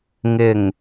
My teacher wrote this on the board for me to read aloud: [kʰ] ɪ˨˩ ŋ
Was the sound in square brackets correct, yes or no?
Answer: no